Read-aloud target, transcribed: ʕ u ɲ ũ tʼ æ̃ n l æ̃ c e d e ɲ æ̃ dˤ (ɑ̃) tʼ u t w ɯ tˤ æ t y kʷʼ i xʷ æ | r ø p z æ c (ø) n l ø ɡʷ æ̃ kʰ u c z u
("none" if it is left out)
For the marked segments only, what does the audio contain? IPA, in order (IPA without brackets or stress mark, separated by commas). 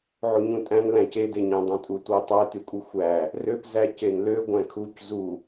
ɑ̃, e